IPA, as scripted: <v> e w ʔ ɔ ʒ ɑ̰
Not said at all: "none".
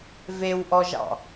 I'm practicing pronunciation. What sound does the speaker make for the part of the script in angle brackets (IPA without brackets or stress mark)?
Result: v